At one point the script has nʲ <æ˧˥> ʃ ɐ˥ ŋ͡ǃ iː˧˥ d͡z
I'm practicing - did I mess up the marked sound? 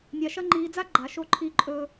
yes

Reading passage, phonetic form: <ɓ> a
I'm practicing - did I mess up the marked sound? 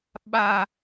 no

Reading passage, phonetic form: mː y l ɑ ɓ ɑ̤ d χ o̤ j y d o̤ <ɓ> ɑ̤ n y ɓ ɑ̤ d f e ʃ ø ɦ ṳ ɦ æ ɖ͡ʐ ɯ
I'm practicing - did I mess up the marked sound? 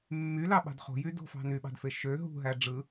yes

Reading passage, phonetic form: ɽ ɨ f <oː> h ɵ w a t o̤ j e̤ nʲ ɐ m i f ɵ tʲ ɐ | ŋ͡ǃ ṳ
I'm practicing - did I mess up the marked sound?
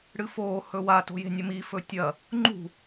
no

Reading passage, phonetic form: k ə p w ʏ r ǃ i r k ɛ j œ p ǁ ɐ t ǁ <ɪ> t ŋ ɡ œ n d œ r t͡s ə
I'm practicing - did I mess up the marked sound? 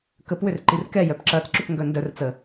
yes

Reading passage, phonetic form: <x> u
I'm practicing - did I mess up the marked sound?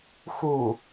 no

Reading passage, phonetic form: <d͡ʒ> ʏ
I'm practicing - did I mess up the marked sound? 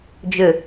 no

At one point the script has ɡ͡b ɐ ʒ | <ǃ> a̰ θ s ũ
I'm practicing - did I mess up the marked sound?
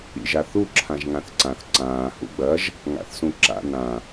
yes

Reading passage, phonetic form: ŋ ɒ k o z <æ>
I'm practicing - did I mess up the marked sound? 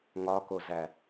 no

